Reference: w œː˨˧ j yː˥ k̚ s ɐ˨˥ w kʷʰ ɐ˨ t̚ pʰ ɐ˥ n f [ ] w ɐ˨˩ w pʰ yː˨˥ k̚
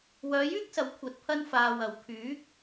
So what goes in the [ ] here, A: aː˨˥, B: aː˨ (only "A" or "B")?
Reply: B